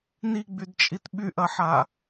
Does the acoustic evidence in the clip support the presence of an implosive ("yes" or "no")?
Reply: yes